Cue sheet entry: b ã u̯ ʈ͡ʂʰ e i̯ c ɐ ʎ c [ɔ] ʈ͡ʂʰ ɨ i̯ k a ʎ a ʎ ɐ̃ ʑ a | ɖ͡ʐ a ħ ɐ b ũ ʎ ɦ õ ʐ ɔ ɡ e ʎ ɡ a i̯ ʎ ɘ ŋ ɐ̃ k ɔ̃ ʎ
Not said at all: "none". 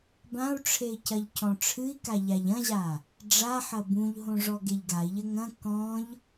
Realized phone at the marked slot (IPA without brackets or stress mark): ɔ̃